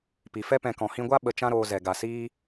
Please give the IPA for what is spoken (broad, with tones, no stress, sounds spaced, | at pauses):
p i˨ f ɛ˦ p ɛ̃˧ k ɔ̃˨ h ĩ˧ ɡʷ a˦ ɓ ə˧ t͡ʃ ã˦ ɾ oː˧ z ɛ˨ ɡ a˨ s iː˦